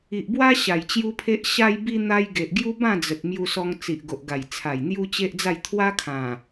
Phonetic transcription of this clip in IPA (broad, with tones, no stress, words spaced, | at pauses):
i˨ʔbwa˦ ɕa˨˩jt͡ɕju˦pʰe˦ʔ ɕa˧jbi˧n̪a˧j ɡe˨ʔɡju˦ bã˥˧d͡zə˨t̚ mju˧sɔ˧ŋ t͡si˨ʔɡo˨ʔɡa˨˩jt͡sʰa˨˩j n̪ju˦t͡ɕe˦ʔd͡za˥˧j t̪ʰwa˦ kʰã˨˩